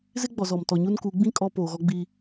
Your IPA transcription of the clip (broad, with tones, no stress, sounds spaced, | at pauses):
z ɪ˦ ɡ͡b ɔ˨ z ɔ˨ m t ɔ˨ ɲ u˦ n k u˨˦ ɡ͡b ĩ˦ kʼ ɔ˦ p oː˨ ɣ ɔ˦ ɡ͡b iː˦